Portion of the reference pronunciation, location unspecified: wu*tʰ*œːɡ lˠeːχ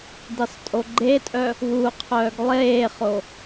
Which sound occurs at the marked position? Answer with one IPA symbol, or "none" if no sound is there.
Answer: qʰ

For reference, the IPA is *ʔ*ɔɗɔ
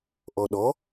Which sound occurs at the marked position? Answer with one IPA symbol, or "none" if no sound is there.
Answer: ʔ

